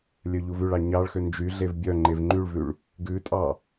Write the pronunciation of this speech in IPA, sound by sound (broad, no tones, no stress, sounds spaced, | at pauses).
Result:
lʲ œ ʎ u v ʉ ɭ ɑ ɲ ɑ ɭ x ø n d͡ʒ y ɮ e v bʲ œ ŋ͡ǃ e v ŋ͡ǃ y ɭ v ʉ ɭ | ɡ ʉ tʼ ɑ